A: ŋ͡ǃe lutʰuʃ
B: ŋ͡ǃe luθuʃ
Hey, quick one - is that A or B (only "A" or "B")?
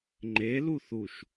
B